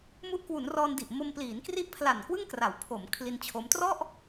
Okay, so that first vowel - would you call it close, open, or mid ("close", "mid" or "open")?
close